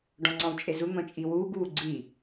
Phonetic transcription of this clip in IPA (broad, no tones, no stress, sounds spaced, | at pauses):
ɖ ɔ̃ ŋ͡ǀ ɑ̃ w t͡ʃʼ e z u n̪ ɔ̃ t͡ʃʼ i w uː ɡ uː ɡ͡ǀ i